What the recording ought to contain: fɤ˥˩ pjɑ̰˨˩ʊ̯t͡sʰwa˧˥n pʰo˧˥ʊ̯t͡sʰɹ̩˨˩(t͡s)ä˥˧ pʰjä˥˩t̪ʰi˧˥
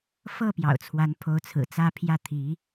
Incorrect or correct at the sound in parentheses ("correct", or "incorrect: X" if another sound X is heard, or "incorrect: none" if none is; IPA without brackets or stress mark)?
correct